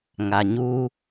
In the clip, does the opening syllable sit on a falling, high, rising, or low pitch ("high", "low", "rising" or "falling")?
low